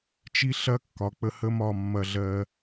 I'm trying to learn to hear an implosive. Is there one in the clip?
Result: no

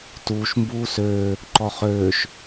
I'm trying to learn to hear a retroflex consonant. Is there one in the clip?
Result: no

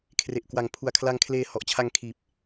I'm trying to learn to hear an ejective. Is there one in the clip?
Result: no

